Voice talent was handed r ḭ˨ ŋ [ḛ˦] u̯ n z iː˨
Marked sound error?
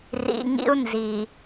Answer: yes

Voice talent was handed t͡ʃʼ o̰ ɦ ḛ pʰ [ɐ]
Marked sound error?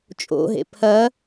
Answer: no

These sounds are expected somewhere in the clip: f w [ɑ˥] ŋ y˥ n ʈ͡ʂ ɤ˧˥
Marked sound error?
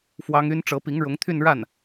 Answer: no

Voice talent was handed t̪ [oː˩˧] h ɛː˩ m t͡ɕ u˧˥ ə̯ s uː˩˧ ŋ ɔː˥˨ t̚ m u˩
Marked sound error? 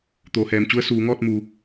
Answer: no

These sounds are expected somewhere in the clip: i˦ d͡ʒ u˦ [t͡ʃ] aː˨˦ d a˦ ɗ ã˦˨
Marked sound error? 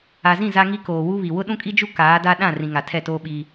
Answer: yes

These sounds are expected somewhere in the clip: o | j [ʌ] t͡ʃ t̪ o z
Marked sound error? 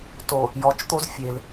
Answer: yes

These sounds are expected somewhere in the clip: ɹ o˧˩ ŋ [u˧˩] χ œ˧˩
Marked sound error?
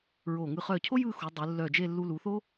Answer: yes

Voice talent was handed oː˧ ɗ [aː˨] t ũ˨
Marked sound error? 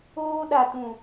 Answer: yes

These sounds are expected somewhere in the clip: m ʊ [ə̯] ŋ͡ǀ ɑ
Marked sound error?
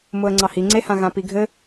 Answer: no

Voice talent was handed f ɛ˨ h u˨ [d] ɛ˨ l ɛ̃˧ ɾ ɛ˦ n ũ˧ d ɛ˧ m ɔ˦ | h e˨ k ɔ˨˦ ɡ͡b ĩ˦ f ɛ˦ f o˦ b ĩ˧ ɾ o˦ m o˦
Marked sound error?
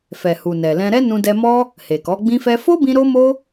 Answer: yes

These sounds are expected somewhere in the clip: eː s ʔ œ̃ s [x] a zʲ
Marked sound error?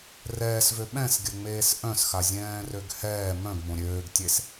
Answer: no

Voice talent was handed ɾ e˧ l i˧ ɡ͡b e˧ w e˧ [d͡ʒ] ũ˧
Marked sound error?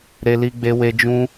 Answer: no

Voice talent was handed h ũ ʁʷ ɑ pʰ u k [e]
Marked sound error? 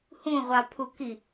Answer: yes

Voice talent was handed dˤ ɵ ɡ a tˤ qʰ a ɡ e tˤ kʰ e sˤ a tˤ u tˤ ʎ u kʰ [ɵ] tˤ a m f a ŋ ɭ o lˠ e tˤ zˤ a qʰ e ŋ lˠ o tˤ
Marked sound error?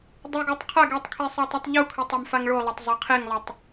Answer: no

